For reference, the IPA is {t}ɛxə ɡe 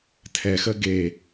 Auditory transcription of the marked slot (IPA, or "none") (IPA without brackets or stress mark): tʰ